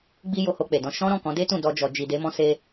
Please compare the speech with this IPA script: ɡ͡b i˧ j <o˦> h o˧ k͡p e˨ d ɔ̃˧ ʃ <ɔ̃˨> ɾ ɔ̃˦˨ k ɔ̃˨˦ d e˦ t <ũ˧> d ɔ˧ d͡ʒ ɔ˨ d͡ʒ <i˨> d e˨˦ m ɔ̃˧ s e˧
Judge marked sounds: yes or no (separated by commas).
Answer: no, no, no, yes